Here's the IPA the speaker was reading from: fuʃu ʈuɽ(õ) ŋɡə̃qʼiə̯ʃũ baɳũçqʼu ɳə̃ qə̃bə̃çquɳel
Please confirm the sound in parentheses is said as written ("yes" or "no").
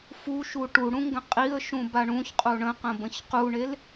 no